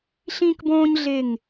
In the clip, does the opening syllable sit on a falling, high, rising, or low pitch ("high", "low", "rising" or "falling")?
high